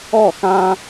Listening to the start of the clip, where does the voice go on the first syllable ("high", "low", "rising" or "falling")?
falling